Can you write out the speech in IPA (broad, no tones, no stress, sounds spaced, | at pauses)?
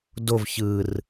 d o v ç ɯ r